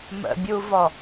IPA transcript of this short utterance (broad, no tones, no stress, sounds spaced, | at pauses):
m ə̰ bʲ u v ɔ